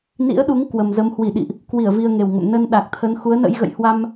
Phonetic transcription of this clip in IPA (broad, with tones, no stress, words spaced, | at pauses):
nḭ˧˥ə̯ɗu˨˦ŋ kwə˨˩mzə˨˦m hwi˧˩ ɗḭ˧˨ʔ | kwi˧˩ə̯ vi˧ə̯ŋe˨˩wŋə̰˧˨m nə˧n ɗa˨˩k̚t̪ʰə˨˦n xu˨˦ə̯nə̰˧˥jɣə̰˧˨jhwa˧m